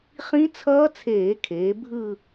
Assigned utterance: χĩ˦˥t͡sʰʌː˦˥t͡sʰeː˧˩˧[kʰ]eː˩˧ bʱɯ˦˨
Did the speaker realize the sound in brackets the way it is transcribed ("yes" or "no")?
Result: yes